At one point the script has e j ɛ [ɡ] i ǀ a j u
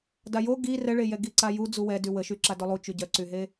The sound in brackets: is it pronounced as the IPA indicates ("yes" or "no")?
yes